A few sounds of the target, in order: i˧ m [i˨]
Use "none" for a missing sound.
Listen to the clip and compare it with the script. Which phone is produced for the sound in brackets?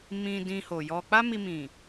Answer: ĩ˨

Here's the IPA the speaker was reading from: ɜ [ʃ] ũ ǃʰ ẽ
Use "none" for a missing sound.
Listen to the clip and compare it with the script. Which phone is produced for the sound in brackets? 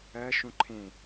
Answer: ʃ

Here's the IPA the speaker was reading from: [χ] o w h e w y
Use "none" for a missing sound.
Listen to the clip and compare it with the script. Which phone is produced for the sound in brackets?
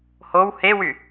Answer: h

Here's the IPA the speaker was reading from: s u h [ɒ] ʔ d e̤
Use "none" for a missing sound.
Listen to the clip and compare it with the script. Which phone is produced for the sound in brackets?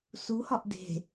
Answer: ɒ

